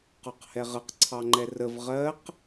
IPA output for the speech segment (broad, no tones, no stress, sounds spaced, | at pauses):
q ɒ q h ɛ ʁ ə q ǀʰ ɑ ŋ͡ǃ ɛ r ə v ʁ ɜ q